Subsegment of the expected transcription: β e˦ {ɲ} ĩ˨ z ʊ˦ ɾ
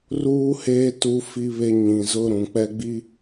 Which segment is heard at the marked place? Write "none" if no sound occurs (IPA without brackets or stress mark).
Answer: ɲ